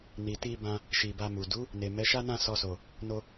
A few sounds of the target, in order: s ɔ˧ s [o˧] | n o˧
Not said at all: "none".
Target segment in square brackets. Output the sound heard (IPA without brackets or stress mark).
o˨